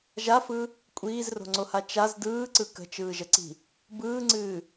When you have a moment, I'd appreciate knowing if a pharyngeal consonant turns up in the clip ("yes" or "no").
no